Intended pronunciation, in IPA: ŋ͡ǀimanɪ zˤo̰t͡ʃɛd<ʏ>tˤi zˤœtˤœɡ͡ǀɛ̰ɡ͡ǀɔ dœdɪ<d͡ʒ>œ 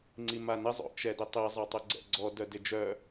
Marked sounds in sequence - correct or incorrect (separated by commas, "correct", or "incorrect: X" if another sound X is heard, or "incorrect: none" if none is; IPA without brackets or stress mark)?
correct, correct